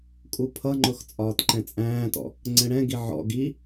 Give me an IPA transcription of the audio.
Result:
kʼ u pʰ ʌ ŋ͡ǃ ʊ x t͡sʼ ɒː t ǃ ɛ̃ t͡sʼ æ̃ː t ɔ̰ | ŋ͡ǀ ɛ̃ ɽ ɛ̃ ɡ i ʕ ɔ̰ ɡ i

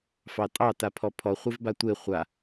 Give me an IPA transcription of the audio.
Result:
f ɑ tʼ ɑ t a pʰ ɔ pʰ ɔ χʷ e v b a tʷ e χʷ a

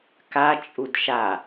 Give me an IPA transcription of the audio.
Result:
k a t͡ʃʼ u d ʃ a

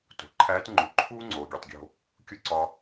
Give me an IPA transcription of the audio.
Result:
t o̤˩ ǃʰ æː˧˥ t ŋ͡ǃ u˩˧ ǃʰ uː˥ ŋ͡ǀ oː˩ ɡʲ e˩ tˤ ɡʲ o̤˧ | kʲ u˥ ǀ ɒ˧

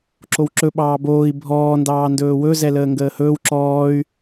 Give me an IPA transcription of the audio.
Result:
ǁ o w ǁ ɵ ɓ ɑː b oː i̯ bʱ ɔː n d ɑː n d ɵː w ɵ z ɛ l əː ŋ ɡ əː h ɵː w ǁ ɔː y̯

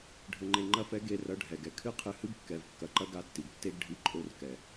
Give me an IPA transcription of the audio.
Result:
ɖʱ ɘ˧ ŋ͡ǃ e˧ ŋ͡ǃ ɐ˦ f ɛ˦ ɡ e˧ r ɐ˨˦ ɖʱ ɛ˨ ɡ ɛ˨ kʰ ɨ˦ qʰ ɨ˧ h ɨ˦ b kː ɛ˨ v kː ɐ˨ ǃ ɐ˦ ɡ a˦˨ tː i˨ ɡ tː e˦ ɡ ɖʱ i˧ ǃʼ o˧ r k ɛ˨

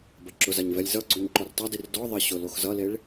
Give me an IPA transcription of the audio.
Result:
b ɐ ǁ ʊ z a ɲ v ɛ lʲ z ʌ ɡ͡ǀ o ɲ ǃ ɔ r tˤ a d i r d ɔ ðˤ e ɕ ʊ l o x z ʌ l e ɭ

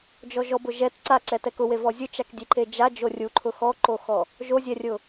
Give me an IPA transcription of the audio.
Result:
d͡ʒ ɔ ʒ ɔ b ʊ ʒ ɛ t ǀ a ǀ ɛ t ɛ k ʊ w e v ɔ zʲ ʊ t͡ʃ a k dʲ e ǃ e d͡ʒ a d͡ʒ o rʲ u ǃʰ ʊ x ɔ ǃ o x ɔ | ʒ o zʲ ɛ rʲ ʊ

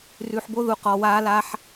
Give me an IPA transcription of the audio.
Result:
r ʉ˨ ħ b o˧ ð u˨ q ɔ˨ w aː˧ l a˧ ħ

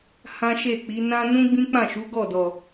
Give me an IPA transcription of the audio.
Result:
h ã˦ ʃ e˦˨ k͡p i˨˦ n ã˧ n ũ˦ ɡ͡b ĩ˦ k͡p ã˦˨ ʃ u˨˦ ɡ ɔ˦˨ d ɔ˨

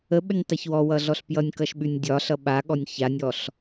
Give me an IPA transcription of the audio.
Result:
ə ɓ ə nʲ tˤ ʌ ç w ɔ w ʌ ɮ ɔ ɬ p j ʌ nʲ k ʌ ʃ ɓ ʉ nʲ dʲ ɒ ɬ ʌ ɓ a ɠ ɔ nʲ ç a nʲ ɔ ɬ

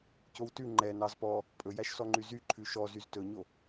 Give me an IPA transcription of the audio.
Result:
c o w t ʉ ŋ͡ǃ ɛ n ɑ z p ɔ | pʼ ɵ j æ ʃ s ɔ ŋ͡ǃ y z y ǃʰ ʉ ʃ ɔ z y z t ɵ ɲ o

